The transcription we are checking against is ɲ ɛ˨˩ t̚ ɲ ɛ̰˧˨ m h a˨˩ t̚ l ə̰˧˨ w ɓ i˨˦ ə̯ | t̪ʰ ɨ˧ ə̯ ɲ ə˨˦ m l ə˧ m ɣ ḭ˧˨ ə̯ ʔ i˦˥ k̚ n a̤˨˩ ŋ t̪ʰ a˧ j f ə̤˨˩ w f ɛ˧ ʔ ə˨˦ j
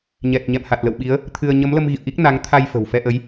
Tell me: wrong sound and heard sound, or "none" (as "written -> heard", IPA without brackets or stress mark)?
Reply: a̤˨˩ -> a˨˦